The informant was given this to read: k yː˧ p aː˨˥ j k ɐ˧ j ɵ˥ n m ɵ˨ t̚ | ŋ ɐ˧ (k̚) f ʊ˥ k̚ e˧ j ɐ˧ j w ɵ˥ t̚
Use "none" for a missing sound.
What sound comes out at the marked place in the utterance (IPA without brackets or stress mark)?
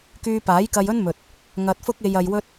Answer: t̚